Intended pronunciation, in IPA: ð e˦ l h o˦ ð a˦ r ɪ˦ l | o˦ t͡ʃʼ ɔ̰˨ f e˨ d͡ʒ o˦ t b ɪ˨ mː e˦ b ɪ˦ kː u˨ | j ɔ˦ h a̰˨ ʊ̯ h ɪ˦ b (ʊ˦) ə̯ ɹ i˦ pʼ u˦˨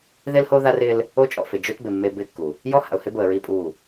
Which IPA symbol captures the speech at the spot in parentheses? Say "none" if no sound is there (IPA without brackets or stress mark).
ʊ˨